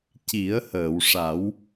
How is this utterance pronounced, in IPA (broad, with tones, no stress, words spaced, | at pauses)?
ci˨˩˦ə̯həː˨˩˨wʂa˨˩˦w